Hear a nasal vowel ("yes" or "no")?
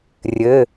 no